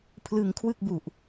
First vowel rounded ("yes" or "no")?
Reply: no